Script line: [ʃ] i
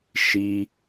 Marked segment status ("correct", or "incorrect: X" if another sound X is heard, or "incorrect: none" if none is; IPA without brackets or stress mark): correct